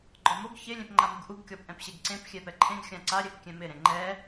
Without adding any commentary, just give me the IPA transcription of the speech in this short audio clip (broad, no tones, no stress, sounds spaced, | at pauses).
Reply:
ɡ͡ǃ ɔ m o ɡ ç ɪ lʲ ẽ p ŋ͡ǃ a m u ɡ ʔ u ɡ kʲ ɔ p ʔ ɛ̃ p ɕ e ɡ ǀ ẽ p xʲ ɛ p ɛ ǃʰ ẽ ɡ xʲ ã ǀ a ɾʲ ɛ p kʲ ɛ̃ m ɪ ɾ ẽ ŋ͡ǃ ɛ